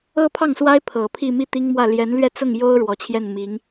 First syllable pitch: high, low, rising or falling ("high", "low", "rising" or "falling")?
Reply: high